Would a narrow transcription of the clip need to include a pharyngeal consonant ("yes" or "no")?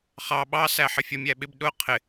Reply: yes